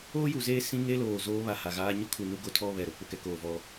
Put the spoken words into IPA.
oː˦ j u˨ z eː˦ s ĩ˦ ŋ e˦ l oː˨ z oː˦ β a˨ h a˨ ɣ aː˦ ɲ ʊ˦ kʰ u˨ n u˦ ɡ o˦ tʰ ɔ˦ β ɛ˨ ɾ o˦ k͡p ʊ˨ k ɛ˦ k oː˨ v ɔ˦

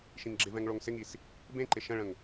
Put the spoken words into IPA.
ʃ ĩ ŋ ɡ͡ǁ ɪ v ɛ̃ ŋ ɭ o ŋ s ɪ ŋ i s | b ẽ ǃ ɪ ʃ ə̃ ɭ ə̃ ŋ

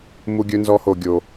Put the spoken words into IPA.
m u˦ ɡʲ ɵ˦ n z ɔ˦ h o˧ ɡʲ o˧

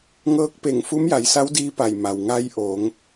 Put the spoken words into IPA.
ŋ ɤː˧˥ k̚ p e˧˩ ŋ f u˧˥ m j a˩˧ j s a˧˥ w d iː˧˥ p a˧˩ j m a˩ w ŋ a˧˥ j ʔ oː˩˧ ŋ

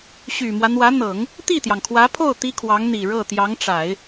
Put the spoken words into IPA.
ɕ y˨˩ m w ä˦ n̪ w ä˧˥ n̪ ɤ˨˩˦ ŋ | t̪ i˥˩ t̪ j ɑ˩ ŋ kʰ w ä˧˥ pʰ o˥˩ ʊ̯ t̪ i˥ kʰ w ɑ˧˥ ŋ n̪ i˨˩ ɻ ɤ˥˩ t̪ j ɑ˧˥ ŋ ʈ͡ʂ a˨˩˦ ɪ̯

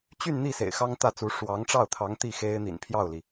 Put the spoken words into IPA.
t͡ɕ y˥˧ n n̪ i˥˩ s ḛ˨˩ ɪ̯ x ɑ˥ ŋ t̪ ä˥˩ t͡s u˧˥ ʂ w ɑ˧˥ ŋ ʈ͡ʂ ɑ˥˩ ʊ̯ t̪ʰ ɑ˧˥ ŋ t̪ i˥˩ x e˥ ɪ̯ n̪ ḭ˨˩ n pʰ j ɑ˥˩ ʊ̯ l i˩

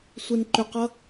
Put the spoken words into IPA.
sʷ e n ǃ ʏ q ʌ

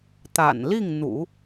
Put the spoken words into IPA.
t̪ a̰˨˩ n l i˥˩ ŋ n̪ ṵ˨˩˦

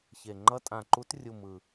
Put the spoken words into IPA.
ç e˨˩ ŋ͡ǃ ʌ˦˥ tʼ ã˨˩ ǃ u˨˦ t rʲ u˨˩ m ɯ˨˩

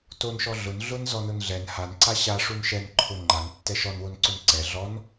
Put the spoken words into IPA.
t o n ʃ ɔ ɮ ʊ n ɮ ʊ n z ɔ n ʊ n ɮ ɛ n h a n ǀ a ɕ a ʂ u n ʃ ɛ n ǃʰ ʊ ŋ͡ǃ a n tː ɛ ʃ ɔ n w o n ǀ ʊ n ǀ ɛ ɮ ɔ n

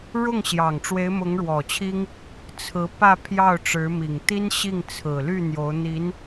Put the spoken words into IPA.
ɻ ʊ˥˩ ŋ ɕ j ɑ˨˩ ŋ ʈ͡ʂ w e˧˥ ɪ̯ m ʊ˧˥ ŋ ɻ w ɔ˨˩ t͡ɕʰ i˥ ŋ | t͡sʰ ɹ̩˧˥ p ä˥˧ pʰ j ɑ˥˩ ʊ̯ ʈ͡ʂ ɻ̩˧˥ m i˨˩ ŋ t̪ i˥ n ɕ i˥˩ ŋ t͡sʰ ɹ̩˨˩ l y˥˩ n̪ j o˧˥ ʊ̯ n̪ i˧˥ n

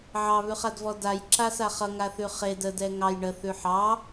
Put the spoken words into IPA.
ʕ ɑ β ʉ χ a d v ɔ d a j ǁ a s a χ ʌ ŋ a θ ʉ χ e d ə d ɛ ŋ ɑ j ɳ ə θ ʉ ħ ɑ

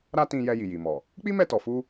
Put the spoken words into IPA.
ɾ a˦ t ĩ˧ j ɛ˧ j i˨ j i˨ m ɔ˨ | k͡p i˦ m ɛ˦˨ t ɔ˨ f u˧

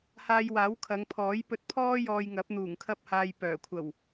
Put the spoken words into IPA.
h aː˧ j w aː˨˥ w kʰ ɐ˨˧ ŋ pʰ ɔː˨˥ j p ɵ˧ t̚ pʰ ɔː˥ j ɔː˧ j ŋ ɐ˨˥ p̚ n̪ uː˨˩ ŋ kʰ ɐ˥ p̚ h aː˧ j p œː˨˩ kʷʰ ɐ˨˩ w

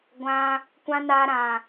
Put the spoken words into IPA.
ɡʷ ã˧ | kʷ ã˧ n aː˧ ɾ ã˨

